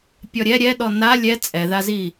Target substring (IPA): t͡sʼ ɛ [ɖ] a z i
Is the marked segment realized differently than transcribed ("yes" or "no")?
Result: yes